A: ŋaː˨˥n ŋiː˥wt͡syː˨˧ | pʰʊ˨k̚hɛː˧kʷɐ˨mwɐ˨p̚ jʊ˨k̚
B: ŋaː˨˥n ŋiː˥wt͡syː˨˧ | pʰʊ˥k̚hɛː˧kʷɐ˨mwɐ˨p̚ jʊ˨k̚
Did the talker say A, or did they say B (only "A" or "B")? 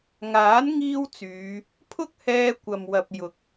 B